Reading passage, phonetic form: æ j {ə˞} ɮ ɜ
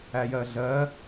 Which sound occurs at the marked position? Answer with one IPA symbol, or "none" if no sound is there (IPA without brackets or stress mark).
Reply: ɜ